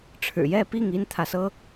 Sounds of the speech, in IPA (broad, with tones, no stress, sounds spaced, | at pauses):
ʈ͡ʂʰ ɻ̩˨˩ j ɛ˥˨ p i˥˨ ŋ i˦ n t̪ʰ ä˨ s ɤ˦